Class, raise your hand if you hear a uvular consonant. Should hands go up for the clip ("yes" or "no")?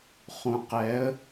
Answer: yes